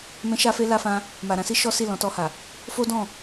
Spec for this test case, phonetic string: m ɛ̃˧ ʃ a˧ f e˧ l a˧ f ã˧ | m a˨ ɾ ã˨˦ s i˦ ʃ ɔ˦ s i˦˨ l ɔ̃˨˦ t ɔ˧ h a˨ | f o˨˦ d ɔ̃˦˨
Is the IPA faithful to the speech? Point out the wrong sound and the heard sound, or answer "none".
o˨˦ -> o˦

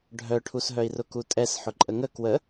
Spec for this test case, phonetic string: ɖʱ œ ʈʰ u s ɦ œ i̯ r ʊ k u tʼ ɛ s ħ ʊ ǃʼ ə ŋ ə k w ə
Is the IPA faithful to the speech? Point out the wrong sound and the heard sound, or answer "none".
none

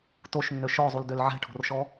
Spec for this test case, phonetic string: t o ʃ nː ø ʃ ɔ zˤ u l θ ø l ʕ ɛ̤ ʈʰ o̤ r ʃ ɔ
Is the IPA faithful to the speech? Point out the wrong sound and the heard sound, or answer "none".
θ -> d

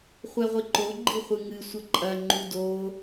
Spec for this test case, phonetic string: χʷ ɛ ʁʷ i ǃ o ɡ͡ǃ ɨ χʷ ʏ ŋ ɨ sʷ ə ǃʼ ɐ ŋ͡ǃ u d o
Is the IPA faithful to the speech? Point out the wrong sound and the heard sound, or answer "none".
ʏ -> ɨ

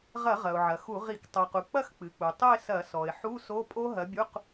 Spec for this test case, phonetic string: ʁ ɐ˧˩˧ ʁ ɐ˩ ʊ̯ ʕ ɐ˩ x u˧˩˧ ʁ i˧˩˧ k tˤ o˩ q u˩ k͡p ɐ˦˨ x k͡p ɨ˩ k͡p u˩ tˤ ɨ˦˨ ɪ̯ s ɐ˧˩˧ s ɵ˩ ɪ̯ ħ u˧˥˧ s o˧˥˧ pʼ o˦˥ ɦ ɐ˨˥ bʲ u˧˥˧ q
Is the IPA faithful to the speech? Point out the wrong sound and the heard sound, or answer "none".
ɵ˩ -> ɔ˩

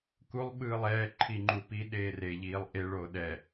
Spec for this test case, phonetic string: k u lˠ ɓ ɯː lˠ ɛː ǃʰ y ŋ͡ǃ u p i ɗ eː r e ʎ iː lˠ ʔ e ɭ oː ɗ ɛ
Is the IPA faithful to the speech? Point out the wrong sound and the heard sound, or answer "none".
y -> i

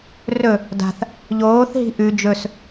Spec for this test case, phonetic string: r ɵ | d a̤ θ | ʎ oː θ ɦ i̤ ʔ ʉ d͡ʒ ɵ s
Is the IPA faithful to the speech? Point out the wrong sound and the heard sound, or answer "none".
none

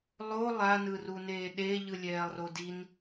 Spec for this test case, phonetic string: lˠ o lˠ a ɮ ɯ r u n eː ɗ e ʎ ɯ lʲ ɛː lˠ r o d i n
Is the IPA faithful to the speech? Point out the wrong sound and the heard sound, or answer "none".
ɮ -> n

